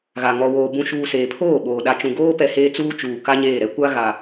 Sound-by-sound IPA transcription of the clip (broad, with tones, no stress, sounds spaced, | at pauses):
ɣ a˨ ŋ ɔ˨ w oː˨ b ũ˨ ʃ uː˨ s eː˨ pʰ oː˦˨ ɓ oː˨ ɗ a˨ t͡ʃ ũ˨ ɡ oː˦ p ɛ˨ h eː˦ t͡s uː˦ t͡ʃ uː˨ k a˦ ɲ eː˦˨ ɾ ɛ˦ kʷ a˦ ɣ a˨